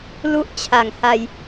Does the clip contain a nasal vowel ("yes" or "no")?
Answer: no